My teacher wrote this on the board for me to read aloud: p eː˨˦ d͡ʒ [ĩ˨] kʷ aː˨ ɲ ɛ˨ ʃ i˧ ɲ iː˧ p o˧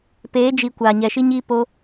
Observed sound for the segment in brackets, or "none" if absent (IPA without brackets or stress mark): i˨